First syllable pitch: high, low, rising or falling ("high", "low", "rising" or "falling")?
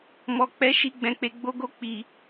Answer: low